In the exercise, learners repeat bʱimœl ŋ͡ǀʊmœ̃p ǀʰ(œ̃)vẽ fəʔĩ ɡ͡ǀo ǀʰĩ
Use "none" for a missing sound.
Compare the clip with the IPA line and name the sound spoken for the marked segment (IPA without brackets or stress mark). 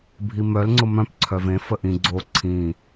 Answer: œ